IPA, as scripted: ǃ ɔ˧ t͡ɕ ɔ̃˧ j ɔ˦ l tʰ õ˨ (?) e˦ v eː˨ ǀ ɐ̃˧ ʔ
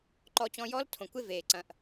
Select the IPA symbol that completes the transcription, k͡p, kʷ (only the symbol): kʷ